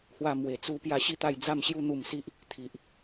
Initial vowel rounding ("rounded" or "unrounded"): unrounded